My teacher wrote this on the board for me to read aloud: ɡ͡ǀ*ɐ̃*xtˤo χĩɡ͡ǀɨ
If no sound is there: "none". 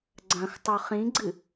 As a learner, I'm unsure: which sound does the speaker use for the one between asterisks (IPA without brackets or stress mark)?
ɐ̃